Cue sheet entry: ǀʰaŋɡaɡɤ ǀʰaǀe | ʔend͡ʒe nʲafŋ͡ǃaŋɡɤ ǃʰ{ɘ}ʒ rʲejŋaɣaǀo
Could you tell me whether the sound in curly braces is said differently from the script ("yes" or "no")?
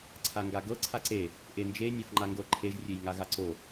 yes